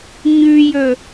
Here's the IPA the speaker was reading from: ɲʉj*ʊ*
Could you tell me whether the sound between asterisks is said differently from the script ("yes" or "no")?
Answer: yes